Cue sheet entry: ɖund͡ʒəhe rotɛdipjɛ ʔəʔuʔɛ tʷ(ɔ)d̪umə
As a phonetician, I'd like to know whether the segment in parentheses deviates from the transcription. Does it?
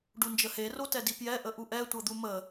yes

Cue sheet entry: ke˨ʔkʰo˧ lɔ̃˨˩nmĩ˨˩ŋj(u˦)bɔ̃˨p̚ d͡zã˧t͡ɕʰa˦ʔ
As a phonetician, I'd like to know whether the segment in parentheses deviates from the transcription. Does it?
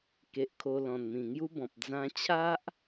no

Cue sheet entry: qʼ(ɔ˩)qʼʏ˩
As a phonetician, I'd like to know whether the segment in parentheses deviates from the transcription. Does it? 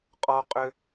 no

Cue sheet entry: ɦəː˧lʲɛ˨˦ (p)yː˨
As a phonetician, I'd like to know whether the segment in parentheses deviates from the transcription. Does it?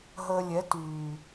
yes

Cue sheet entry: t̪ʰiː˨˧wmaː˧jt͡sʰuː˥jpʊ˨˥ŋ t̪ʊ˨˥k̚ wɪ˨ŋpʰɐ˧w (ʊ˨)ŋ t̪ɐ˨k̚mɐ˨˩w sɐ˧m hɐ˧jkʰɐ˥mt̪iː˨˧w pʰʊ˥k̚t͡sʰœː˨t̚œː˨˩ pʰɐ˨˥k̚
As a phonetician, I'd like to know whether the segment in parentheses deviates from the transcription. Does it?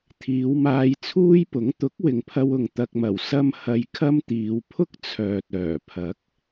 no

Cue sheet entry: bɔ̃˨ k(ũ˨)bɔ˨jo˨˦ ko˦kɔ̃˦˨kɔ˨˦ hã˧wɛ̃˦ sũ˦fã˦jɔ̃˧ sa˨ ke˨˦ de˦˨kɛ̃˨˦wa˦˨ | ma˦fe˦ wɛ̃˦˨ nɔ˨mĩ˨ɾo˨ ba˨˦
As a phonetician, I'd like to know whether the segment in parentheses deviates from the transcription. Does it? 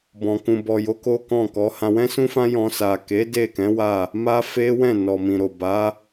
no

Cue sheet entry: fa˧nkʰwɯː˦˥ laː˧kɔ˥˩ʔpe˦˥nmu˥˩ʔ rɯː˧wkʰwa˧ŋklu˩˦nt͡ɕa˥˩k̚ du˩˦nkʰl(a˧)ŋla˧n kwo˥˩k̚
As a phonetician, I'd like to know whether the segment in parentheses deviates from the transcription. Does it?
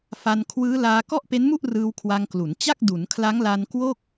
yes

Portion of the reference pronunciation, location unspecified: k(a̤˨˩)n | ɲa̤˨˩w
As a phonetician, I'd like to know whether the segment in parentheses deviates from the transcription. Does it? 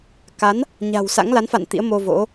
yes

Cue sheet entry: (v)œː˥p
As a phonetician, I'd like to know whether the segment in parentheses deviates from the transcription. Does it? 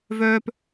no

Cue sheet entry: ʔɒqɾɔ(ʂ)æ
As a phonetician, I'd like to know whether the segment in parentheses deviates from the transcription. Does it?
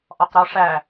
no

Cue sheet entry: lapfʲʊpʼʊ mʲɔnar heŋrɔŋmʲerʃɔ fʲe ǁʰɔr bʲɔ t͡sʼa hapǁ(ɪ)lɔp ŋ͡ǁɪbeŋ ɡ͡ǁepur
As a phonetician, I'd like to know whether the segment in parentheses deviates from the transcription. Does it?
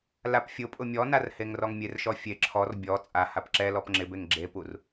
yes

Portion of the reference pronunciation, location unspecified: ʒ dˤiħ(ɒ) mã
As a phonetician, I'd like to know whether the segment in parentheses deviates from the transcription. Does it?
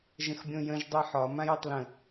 no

